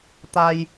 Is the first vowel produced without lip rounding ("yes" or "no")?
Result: yes